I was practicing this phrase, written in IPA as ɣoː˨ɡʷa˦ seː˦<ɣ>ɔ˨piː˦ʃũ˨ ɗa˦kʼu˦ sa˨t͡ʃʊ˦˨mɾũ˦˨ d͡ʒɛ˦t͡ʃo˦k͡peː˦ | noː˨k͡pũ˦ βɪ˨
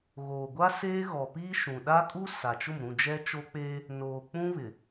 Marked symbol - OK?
yes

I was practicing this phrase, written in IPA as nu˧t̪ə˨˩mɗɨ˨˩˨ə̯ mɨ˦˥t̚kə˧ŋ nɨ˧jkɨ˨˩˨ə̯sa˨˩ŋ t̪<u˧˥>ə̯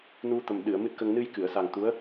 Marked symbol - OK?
yes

